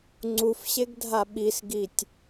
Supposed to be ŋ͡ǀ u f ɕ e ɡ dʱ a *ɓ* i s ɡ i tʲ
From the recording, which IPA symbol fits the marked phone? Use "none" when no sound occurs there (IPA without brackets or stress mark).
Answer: ɓ